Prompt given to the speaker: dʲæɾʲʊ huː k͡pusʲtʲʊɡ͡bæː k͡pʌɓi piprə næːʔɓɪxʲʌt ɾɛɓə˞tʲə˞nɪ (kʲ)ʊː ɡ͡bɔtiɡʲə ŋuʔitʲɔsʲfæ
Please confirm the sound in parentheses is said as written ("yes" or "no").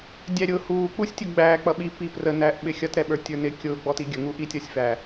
yes